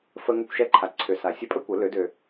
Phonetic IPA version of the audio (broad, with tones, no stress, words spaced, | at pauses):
fə˧ŋʏ˧kʷʃɛ˧ǃʰa˩ ǀʰʏ˩sa˩ sʲə˧pʼə˥kʷə˩˧ lø˩˧dø˩